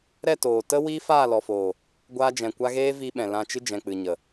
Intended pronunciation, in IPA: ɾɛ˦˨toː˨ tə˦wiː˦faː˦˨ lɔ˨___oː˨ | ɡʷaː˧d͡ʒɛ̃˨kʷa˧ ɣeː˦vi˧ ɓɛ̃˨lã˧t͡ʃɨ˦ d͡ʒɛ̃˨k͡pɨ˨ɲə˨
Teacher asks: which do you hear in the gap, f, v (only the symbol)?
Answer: f